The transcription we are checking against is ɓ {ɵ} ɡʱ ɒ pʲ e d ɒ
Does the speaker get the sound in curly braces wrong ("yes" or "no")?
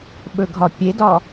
no